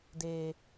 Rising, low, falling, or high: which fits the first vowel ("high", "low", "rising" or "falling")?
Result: low